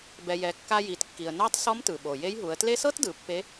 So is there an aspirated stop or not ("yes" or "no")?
no